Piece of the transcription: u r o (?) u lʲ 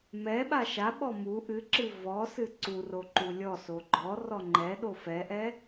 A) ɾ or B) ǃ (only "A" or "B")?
B